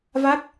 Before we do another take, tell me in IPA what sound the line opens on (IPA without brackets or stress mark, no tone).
v